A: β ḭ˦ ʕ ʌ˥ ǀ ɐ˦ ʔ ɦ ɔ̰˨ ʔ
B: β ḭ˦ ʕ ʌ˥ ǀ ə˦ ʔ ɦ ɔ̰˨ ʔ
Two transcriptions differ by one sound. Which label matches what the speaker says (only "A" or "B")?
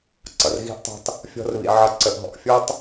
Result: B